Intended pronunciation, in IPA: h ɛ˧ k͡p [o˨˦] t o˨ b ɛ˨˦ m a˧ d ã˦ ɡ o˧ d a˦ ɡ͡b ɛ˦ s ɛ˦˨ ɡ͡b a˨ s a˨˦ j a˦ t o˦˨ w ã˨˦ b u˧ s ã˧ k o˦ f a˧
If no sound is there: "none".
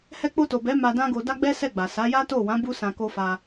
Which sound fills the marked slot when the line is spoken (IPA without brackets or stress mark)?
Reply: o˧